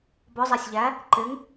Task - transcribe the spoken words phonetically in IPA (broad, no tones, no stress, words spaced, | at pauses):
bɔzˤɛsʲʎæ | ǃɪŋ